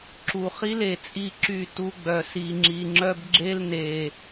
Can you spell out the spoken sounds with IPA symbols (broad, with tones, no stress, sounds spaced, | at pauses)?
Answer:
ǁ u˨ χ i˦ l e˨ t͡sʼ i˦ ǁ y˦˨ t u˦ ɡ͡b œ˨ s i˨ ŋ͡ǁ i˨ ŋ͡ǁ œ˦ b ɡ͡ǁ e˦ l n e˨